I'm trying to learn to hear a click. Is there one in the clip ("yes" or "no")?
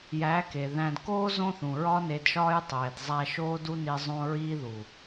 no